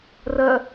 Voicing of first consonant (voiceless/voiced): voiced